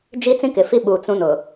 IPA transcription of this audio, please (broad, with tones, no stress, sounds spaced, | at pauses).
d͡ʒ i˦ t͡s ĩ˦ k ɪ˨ f i˦ ɓ u˨ t͡s ũ˦ n ʊ˨